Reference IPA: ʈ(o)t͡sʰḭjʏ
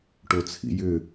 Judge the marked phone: correct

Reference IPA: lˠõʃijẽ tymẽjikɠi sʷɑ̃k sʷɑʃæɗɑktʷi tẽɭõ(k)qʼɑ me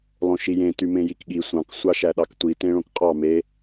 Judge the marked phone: correct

